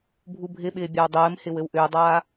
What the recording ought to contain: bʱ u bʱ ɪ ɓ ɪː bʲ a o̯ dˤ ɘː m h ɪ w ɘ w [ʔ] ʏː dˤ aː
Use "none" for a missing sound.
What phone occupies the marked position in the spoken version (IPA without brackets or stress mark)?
ʔ